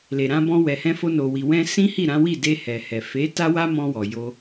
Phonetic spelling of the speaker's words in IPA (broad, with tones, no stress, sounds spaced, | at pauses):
l e˨ ɾ ã˧ b ɔ̃˧ w ɛ˨ h ɛ̃˧ f o˧ n o˨ w i˨ w ɛ̃˧ s ĩ˦ h i˦˨ ɾ ã˨˦ w i˦˨ d e˧ h ɛ˨ h ɛ˨ f e˨˦ t a˦ w a˦ m ɔ̃˧ w ɔ˨ j o˧